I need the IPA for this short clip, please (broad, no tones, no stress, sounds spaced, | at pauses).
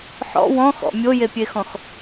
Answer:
ħ ɔ̰ w ɔ̃ x ɔ̰ mʲ o j e pʲ e x ɔ̃ x